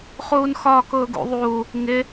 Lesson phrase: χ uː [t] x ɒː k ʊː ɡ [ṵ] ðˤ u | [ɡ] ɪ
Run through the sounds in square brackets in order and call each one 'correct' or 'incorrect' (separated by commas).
incorrect, correct, incorrect